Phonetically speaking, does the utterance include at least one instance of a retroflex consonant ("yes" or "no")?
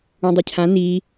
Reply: no